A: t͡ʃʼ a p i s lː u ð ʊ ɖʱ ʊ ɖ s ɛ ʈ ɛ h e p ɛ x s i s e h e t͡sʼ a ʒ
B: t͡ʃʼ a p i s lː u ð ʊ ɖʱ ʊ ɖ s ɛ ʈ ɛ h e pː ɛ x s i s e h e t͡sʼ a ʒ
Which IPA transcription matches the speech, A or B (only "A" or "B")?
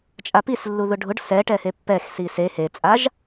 B